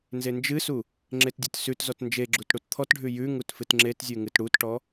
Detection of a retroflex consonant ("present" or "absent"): present